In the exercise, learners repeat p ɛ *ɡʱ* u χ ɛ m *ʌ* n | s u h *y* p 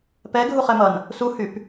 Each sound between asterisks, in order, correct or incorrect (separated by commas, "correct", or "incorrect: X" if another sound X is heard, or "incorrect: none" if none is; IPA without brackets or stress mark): correct, correct, correct